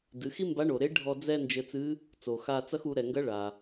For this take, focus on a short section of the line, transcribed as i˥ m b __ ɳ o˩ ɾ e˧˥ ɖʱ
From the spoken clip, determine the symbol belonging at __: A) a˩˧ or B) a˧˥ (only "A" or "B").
B